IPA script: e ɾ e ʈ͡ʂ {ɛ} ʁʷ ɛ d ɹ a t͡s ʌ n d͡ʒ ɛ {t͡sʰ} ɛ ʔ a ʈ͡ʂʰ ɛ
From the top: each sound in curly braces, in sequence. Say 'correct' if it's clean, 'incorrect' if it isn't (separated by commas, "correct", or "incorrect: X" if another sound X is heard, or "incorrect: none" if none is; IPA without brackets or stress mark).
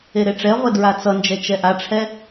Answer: correct, incorrect: t͡ʃ